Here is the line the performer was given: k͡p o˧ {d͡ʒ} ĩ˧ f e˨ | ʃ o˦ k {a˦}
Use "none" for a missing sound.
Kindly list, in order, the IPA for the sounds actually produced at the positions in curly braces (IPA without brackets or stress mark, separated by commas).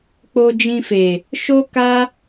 d͡ʒ, a˦